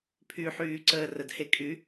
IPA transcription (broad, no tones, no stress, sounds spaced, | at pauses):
pʰ y ħ yː ǀ əː r ə d h e kʼ y